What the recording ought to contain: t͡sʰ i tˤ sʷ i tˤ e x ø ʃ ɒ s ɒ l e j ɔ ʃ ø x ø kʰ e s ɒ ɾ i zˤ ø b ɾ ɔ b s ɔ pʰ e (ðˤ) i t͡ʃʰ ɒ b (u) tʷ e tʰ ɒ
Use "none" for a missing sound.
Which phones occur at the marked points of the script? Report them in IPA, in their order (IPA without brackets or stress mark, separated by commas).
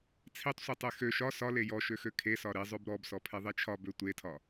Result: ðˤ, ø